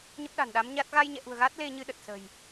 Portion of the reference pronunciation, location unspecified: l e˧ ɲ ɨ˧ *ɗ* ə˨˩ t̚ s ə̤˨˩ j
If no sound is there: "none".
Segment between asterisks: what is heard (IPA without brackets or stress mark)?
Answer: ɗ